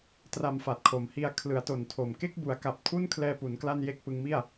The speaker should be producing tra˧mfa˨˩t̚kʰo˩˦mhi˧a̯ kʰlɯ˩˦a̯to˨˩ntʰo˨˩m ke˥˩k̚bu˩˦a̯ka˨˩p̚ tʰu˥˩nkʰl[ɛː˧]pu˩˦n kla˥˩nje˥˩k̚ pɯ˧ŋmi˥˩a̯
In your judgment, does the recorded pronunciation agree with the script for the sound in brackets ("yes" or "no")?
yes